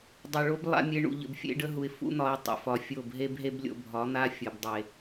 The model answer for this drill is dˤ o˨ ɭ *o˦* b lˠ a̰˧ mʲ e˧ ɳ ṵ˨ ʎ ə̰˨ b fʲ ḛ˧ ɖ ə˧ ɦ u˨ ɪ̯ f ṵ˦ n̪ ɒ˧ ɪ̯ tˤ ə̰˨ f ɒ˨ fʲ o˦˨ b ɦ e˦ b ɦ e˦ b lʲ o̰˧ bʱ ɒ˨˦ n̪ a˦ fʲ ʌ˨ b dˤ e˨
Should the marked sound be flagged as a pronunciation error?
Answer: no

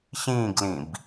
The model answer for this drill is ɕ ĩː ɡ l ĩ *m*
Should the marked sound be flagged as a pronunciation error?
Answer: yes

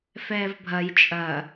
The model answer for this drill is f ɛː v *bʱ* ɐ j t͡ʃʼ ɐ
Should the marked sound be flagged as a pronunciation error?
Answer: no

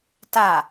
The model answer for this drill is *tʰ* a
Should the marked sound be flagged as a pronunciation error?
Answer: yes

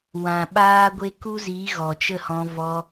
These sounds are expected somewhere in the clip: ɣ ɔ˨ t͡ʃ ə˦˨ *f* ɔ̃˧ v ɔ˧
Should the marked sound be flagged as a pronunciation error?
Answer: yes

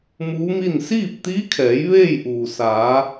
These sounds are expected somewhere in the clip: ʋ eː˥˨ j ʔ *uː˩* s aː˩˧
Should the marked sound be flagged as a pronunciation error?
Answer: no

